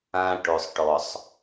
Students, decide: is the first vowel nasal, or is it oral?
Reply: nasal